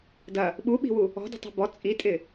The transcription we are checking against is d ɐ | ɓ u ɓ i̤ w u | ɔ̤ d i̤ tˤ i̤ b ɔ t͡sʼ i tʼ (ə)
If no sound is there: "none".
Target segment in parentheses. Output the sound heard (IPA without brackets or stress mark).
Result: ɪ